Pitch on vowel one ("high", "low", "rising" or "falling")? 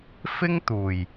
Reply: high